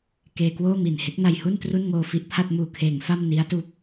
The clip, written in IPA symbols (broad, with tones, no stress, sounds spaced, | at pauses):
k eː˧ k w oː˥˩ m i˨˩ n h e˦˥ k̚ n a˧ j h u˥˩ n t r u˥˩ n ŋ oː˧ f i˦˥ ʔ pʰ a˥˩ t̚ m uː˨˩ kʰ eː˩˦ ŋ f a˥˩ m n i˦˥ a̯ t uː˦˥ p̚